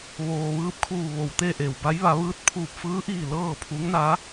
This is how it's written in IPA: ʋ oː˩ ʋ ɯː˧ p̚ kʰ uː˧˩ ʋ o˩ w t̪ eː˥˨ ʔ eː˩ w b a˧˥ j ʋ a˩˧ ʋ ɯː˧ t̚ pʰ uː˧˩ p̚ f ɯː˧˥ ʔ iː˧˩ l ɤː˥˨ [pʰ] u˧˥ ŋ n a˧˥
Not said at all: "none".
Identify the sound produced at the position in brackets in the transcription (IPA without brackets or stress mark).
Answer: pʰ